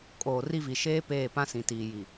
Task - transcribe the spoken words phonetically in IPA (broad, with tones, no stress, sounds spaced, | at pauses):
kʼ oː˨ r i˦ v i˨ ʃ eː˦ p eː˦˨ p ã˦ s ĩ˨ t iː˨ j i˨